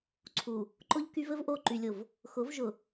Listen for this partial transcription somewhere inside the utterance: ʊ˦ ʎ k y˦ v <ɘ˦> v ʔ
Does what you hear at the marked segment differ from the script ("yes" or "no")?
no